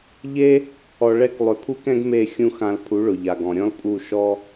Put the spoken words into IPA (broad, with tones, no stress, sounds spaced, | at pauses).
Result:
ʎ e˦ | ɔ˧ ɭ ɛ˦ k lˠ ʏ˧ pʰ u˦ k ɛ̃˦ ɡ m e˦˨ xʲ ũ˦ x ã˧ l pʰ u˨˦ ɭ ʊ˨ ʎ a˨ ɡ ɔ̃˨ ɾʲ ɔ̃˦ l pʼ u˦˨ ʃ ɔ˦